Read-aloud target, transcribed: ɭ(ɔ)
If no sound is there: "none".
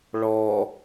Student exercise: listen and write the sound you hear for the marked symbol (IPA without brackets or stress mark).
ɔ